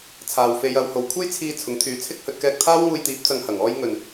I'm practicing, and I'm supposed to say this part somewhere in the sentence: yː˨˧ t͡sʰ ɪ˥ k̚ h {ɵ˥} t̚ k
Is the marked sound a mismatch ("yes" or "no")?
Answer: yes